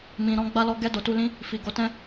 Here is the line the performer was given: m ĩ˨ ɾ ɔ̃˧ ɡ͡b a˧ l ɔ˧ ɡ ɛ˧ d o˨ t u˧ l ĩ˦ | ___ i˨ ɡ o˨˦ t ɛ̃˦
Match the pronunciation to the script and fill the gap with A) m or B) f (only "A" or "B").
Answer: B